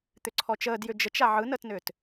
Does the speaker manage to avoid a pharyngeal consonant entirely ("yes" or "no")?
no